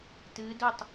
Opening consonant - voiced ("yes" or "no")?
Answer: no